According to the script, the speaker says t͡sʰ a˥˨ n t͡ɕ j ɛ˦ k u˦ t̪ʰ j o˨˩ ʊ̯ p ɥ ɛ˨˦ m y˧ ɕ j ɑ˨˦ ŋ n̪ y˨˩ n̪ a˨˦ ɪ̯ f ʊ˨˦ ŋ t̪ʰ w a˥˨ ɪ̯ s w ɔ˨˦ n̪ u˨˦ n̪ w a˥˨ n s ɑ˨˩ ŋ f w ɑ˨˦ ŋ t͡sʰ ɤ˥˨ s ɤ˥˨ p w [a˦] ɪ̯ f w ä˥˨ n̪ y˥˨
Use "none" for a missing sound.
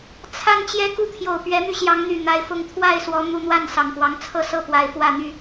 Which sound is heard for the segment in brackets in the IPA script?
a˨˩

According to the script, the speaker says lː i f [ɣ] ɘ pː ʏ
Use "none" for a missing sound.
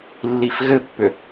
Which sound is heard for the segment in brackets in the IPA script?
ɣ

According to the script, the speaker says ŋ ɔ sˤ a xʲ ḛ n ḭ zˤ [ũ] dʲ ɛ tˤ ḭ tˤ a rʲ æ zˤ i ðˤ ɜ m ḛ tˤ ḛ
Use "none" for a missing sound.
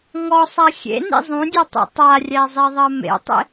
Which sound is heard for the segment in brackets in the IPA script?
ũ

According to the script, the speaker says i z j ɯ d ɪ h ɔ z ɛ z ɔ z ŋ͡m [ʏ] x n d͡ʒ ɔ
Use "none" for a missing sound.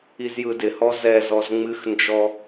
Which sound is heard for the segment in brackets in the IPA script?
ɨ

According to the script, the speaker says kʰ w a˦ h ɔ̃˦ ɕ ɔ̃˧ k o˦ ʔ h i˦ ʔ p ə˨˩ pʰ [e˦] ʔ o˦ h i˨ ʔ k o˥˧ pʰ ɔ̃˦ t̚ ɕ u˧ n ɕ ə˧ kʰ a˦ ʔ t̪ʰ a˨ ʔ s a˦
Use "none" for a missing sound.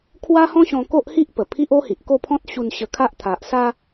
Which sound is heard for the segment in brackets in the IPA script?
i˦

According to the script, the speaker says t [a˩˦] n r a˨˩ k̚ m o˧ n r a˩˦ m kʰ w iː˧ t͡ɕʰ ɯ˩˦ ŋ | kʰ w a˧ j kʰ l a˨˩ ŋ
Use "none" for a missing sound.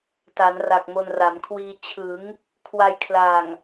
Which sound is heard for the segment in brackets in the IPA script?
a˩˦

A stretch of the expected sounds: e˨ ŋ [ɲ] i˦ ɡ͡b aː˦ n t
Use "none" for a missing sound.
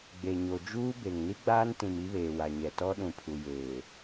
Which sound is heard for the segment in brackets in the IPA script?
n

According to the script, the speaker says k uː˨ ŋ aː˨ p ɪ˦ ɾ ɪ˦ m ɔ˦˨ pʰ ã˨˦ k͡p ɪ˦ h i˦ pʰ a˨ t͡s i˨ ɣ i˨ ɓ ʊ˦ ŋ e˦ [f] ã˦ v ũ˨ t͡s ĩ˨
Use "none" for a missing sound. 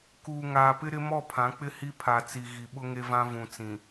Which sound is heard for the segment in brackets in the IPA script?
v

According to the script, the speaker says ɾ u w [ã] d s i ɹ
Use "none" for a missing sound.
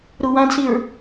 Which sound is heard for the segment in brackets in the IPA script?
ã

